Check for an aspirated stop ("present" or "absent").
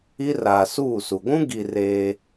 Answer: absent